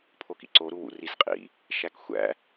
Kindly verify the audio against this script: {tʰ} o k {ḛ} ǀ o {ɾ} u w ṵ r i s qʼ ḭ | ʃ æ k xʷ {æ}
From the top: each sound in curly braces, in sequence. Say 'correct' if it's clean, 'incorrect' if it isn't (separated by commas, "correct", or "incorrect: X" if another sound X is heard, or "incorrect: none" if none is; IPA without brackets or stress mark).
incorrect: pʰ, incorrect: ḭ, correct, incorrect: æ̰